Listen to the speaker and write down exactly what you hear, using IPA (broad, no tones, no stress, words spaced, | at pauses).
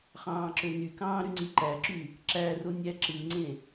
χɑ̃ːǁønykɑ̃ː ɾyŋ͡ǀiǃæǁy | ǁæro nʲæǁɯŋ͡ǀẽ